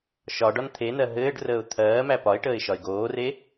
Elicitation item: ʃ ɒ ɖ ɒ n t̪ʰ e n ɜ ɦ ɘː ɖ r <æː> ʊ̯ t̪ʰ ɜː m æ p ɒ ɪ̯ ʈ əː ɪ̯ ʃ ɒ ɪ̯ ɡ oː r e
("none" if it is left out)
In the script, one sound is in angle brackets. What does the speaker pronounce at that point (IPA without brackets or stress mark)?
əː